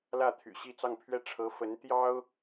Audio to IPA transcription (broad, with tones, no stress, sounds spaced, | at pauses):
l ä˥˩ t̪ʰ y̰˨˩ ɕ i˥˧ t͡s ɑ˥˧ ŋ pʰ ɥ ɛ˥˩ ʈ͡ʂʰ ɤ˧˥ f ə˧˥ n t̪ j ɑ˥ ʊ̯